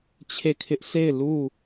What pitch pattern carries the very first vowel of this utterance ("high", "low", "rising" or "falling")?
falling